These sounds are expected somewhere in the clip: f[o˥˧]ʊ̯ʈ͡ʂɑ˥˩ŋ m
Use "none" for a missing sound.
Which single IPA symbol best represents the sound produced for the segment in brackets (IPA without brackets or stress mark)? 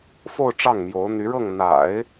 o˥˧